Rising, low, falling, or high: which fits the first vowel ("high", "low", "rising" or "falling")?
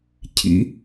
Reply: rising